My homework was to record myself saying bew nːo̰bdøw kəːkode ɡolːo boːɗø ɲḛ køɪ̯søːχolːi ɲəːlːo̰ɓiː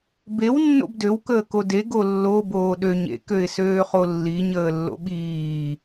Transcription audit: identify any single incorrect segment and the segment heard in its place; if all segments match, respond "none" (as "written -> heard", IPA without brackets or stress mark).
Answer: none